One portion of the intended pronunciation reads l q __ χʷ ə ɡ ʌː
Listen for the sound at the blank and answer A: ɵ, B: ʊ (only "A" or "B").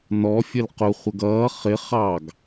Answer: B